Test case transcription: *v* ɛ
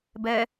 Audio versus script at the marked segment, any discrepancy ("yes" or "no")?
yes